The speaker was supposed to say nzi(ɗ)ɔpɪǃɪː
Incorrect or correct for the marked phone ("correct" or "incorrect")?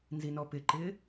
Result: incorrect